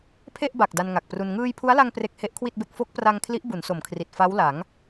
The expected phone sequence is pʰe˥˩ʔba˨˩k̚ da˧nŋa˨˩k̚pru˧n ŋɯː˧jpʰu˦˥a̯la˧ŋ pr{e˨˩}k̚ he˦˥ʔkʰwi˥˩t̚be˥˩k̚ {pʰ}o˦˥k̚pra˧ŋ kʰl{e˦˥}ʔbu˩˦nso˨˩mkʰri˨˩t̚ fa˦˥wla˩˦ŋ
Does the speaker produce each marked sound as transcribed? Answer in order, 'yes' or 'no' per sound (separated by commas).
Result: no, no, no